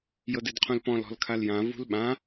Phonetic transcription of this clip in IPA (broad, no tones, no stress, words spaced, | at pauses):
jɤdɪdqʰũlpɔ̃l ɔ̤lkʰaljã vṳlɓã